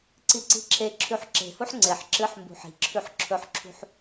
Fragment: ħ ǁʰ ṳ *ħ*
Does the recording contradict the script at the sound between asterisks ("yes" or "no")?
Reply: no